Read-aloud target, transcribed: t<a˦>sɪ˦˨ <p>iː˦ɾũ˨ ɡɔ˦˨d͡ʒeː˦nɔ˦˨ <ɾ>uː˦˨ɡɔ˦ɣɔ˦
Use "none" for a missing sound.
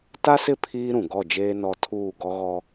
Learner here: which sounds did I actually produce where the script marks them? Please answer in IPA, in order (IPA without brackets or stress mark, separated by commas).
a˦, pʰ, tʰ